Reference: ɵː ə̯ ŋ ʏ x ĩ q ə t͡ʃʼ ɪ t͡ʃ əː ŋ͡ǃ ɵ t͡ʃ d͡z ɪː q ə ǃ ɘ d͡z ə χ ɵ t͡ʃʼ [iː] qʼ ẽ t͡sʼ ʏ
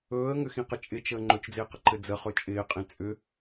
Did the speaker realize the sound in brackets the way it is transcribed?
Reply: no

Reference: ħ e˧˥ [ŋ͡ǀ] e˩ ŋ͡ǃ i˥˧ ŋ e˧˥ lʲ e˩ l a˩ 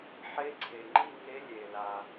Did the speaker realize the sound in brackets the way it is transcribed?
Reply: no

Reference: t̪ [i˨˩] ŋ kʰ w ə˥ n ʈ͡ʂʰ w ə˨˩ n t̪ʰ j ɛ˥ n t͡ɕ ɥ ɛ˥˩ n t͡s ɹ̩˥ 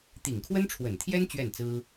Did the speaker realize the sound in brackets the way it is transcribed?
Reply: yes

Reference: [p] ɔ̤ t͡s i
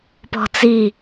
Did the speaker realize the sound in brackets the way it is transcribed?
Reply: yes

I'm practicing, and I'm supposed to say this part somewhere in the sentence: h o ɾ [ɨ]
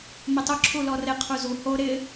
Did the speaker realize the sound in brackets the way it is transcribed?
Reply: no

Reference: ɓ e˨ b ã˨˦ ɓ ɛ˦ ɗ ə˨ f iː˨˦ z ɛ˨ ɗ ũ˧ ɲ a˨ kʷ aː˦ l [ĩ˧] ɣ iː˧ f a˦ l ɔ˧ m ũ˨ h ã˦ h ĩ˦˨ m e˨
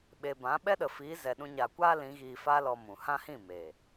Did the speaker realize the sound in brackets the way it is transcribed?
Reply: no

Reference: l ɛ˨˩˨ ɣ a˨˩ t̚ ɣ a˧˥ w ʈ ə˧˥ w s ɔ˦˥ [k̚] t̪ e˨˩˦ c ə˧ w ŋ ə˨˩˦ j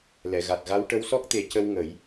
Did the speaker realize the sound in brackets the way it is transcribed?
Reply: yes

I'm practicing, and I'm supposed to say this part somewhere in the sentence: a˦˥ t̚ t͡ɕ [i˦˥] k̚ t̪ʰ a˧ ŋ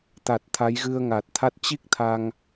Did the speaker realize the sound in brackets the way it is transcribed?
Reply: yes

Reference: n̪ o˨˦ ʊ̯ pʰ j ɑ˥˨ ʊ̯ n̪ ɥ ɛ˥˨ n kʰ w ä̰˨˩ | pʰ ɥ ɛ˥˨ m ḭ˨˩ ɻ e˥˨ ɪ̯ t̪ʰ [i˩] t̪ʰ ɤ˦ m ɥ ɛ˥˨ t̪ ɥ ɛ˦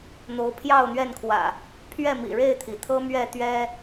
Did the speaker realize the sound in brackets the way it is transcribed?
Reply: yes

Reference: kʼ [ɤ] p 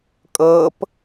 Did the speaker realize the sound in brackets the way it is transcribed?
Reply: yes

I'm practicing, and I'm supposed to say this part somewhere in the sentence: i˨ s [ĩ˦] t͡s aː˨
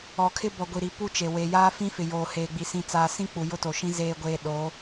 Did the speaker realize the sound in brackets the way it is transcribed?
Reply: no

